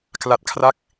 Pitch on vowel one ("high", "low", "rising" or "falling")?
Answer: low